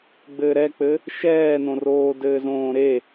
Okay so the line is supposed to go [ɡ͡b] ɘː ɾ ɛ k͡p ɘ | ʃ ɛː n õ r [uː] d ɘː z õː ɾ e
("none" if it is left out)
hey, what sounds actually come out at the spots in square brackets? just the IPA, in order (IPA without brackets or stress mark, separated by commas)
ɡ͡b, oː